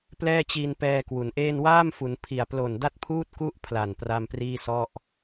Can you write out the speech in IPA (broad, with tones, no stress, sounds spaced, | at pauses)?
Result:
p l ɛː˥˩ t͡ɕ i˧ n p ɛː˧ k w u˩˦ n ʔ eː˥˩ n w aː˥˩ m f u˩˦ n pʰ i˨˩ a̯ p l o˨˩ n d a˥˩ t̚ pʰ uː˥˩ t̚ k u˥˩ ʔ pʰ l a˨˩ n p r a˧ m p r iː˥˩ s ɔ˥˩ ʔ